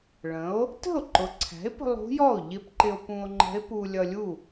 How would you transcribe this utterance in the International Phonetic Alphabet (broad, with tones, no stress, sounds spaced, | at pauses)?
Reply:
ɭ ə̃˩˥ o̯ | t ə̤˥˩ o̯ ǃ ʊ˩˥ ǀʰ æ̤˩˥ e̯ p ə̤˧ lˠ ṳ˧˥ j ɔ˥˩ o̯ ʎ ɪ˧˥ p ǃ ɪ˧ o̯ p ũ˧ o̯ ŋ͡ǃ ə̤˧˥ e̯ p u˧ lʲ ʌ˧ lʲ u˥˩